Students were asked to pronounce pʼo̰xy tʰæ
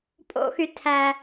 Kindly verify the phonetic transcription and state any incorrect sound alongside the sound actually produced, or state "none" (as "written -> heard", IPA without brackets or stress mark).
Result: none